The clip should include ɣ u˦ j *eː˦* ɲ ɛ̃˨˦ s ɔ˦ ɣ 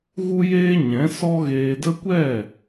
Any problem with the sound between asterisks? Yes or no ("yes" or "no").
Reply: no